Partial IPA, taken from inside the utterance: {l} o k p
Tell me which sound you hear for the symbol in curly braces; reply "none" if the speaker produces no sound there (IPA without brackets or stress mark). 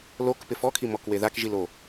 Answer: l